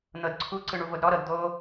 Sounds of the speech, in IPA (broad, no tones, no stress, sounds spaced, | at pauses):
n̪ ɤ d ǀʰ u ǀ ɯ ɳ u v o d ɾ ɔ ɾ ɤ d d̪ o